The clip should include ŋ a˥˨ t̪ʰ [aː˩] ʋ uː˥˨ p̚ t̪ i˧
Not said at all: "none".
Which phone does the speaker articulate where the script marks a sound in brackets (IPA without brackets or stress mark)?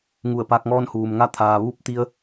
aː˩